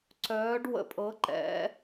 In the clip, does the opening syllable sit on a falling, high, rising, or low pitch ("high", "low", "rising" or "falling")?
rising